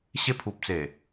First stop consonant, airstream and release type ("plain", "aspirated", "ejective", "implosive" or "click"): aspirated